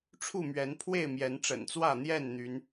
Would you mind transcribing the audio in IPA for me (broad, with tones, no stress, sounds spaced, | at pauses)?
ʈ͡ʂʰ u˥˨ m ɥ ɛ˨˦ n pʰ w e˥˨ ɪ̯ m j ɛ˨˦ n ʈ͡ʂ ə̰˨˩ n t͡s w ä˥˨ n̪ j ɛ˥˨ n n̪ y˨˦ n